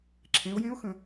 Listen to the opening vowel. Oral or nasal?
nasal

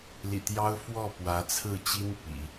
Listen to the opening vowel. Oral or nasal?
oral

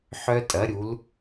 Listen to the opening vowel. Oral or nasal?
oral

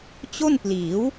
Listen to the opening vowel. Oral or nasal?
oral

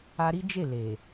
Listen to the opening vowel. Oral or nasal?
oral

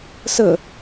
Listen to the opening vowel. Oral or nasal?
oral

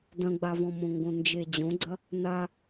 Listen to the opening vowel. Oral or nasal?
nasal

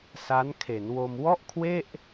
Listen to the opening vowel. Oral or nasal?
oral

